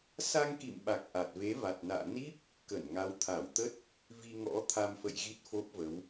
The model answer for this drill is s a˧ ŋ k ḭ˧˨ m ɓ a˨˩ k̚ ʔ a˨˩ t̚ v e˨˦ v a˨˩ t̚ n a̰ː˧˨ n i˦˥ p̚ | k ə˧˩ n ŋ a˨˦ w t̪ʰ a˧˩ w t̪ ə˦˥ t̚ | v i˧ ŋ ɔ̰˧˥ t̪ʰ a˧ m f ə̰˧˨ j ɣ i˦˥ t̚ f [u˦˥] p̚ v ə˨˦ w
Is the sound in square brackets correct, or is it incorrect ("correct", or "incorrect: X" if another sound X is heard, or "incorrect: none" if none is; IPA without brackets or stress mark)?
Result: incorrect: o˦˥